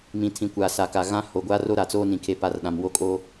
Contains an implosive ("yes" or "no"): yes